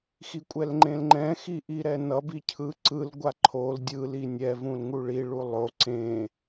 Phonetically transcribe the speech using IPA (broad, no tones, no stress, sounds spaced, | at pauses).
x i kʷʼ ɛ l ŋ͡ǃ ẽ l ŋ͡ǃ ɛ̃ x i ʔ i ɾ ɛ n ʌ b i cʰ ɯ ǀ ɯ l ɡʷ a ǃʰ o l dʲ ɯ l i nʲ ɛ v ũ l ŋ u ɭ i ɭ u lˠ o ǀ ẽ